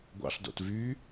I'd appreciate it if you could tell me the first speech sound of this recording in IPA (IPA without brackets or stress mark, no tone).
ɡʷ